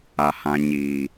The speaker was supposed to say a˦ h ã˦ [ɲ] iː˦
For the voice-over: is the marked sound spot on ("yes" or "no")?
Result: yes